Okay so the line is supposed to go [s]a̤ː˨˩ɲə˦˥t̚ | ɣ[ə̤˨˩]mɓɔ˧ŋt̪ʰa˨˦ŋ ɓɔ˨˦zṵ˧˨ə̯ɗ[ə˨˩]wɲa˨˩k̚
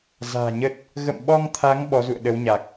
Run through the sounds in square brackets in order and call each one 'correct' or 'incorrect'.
incorrect: z, incorrect: ə̰˧˨, incorrect: ə˨˦

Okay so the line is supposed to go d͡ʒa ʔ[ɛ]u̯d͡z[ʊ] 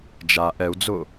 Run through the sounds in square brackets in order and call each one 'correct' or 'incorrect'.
correct, correct

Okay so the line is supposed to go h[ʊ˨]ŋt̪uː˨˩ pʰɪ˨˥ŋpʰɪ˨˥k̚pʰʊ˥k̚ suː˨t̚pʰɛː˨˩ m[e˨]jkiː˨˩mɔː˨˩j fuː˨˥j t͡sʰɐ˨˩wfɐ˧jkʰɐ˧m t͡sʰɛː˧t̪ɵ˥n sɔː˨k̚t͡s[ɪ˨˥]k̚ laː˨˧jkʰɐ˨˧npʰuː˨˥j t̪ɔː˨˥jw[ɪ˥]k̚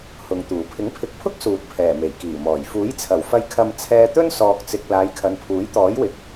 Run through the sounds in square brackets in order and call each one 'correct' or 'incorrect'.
correct, incorrect: e˨˩, incorrect: ɪ˨, incorrect: ɪ˨

